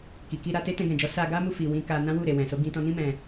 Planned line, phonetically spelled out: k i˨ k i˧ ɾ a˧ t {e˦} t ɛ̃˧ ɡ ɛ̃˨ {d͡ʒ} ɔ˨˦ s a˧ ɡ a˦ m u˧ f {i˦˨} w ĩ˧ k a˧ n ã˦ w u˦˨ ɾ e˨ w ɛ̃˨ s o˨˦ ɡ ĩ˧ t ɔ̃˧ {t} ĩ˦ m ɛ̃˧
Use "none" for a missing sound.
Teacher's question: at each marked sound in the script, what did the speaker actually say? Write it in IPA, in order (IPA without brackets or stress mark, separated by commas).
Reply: e˦, d͡ʒ, i˨, n